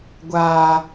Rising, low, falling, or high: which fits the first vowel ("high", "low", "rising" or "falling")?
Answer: low